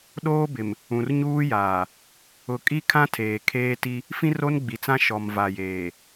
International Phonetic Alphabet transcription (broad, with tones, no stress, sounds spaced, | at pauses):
ɗ oː˦ b ɪ˨ m | ũ˨ r ɲ uː˦ j aː˨ | ʊ˨ kʼ i˦ kʰ ã˦ tʰ eː˨ kʰ eː˦ t i˦ | f ĩ˦ r o˦ n ɡ͡b i˨ t͡s ã˦ ʃ ɔ˨ m v a˨ j eː˨